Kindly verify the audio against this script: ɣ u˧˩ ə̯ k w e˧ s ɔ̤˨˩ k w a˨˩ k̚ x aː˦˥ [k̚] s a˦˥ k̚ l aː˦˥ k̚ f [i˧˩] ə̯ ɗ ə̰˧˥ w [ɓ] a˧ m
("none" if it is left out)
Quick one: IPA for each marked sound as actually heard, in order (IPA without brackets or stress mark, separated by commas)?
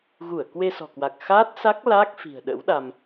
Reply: t̚, i̤˨˩, ɗ